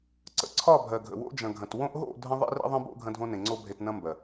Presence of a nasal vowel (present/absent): present